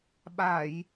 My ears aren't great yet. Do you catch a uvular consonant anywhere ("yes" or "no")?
no